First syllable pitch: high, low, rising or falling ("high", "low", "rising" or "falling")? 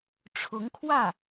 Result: rising